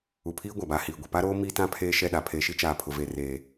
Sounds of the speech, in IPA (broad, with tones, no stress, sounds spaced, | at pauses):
u˨ pʰ iː˦ ɡʷ a˨ b aː˨ h iː˨ ɡʷ e˨ p a˦ ɾ oː˦ m iː˦ t ã˦ pʰ eː˦ ʃ ɛ˦˨ ɗ a˨ pʰ e˨ ʃ i˦ t͡ʃ aː˨ pʰ ʊ˨ v eː˨ r eː˨